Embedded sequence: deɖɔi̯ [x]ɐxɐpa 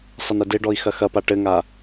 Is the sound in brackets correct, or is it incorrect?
correct